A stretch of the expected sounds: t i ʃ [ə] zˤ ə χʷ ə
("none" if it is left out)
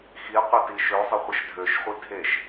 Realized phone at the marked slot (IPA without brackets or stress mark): ø